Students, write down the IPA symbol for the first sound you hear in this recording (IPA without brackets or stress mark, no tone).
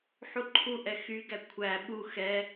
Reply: ħ